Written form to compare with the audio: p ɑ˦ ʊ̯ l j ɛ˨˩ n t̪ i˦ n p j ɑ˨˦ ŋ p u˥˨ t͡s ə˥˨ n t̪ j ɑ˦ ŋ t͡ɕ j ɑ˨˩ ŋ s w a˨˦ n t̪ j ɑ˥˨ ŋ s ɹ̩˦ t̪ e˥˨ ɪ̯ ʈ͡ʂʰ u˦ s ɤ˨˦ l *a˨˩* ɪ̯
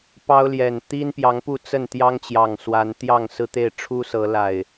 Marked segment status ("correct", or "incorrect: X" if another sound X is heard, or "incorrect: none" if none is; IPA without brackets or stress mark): correct